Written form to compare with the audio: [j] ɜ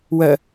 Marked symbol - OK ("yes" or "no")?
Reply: no